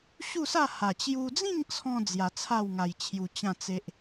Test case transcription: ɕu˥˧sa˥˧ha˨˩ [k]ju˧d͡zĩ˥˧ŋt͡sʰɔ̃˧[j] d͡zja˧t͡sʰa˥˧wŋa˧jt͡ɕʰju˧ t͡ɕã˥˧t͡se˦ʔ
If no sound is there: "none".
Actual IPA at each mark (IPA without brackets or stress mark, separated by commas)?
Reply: t͡ɕ, none